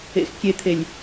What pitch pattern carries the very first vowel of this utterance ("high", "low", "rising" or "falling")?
low